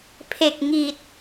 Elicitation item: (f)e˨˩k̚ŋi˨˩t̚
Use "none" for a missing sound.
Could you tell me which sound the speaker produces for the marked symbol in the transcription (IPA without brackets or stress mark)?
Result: pʰ